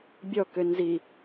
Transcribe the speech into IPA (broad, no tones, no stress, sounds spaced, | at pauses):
bʲ ɔ k ø n z i